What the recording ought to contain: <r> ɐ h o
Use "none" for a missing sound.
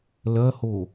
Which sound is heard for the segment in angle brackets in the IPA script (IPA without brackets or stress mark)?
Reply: l